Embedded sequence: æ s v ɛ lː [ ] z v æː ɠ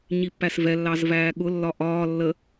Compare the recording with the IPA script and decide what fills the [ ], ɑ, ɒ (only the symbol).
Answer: ɑ